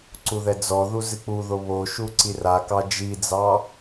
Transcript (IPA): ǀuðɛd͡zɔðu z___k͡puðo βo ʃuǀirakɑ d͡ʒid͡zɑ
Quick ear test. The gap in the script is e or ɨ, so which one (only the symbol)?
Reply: ɨ